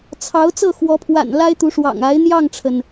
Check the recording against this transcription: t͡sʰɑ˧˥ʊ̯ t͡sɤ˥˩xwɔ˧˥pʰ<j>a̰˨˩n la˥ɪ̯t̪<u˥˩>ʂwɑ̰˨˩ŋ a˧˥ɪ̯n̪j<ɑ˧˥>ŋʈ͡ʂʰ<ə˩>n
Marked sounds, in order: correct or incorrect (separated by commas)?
incorrect, incorrect, incorrect, correct